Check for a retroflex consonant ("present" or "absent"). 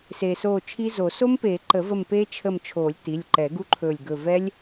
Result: absent